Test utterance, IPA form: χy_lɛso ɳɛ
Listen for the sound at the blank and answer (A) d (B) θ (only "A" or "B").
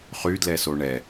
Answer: A